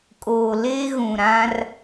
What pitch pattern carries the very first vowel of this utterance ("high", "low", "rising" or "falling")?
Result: low